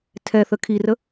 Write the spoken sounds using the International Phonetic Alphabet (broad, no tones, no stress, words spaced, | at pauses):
tʰɛθə kʰirə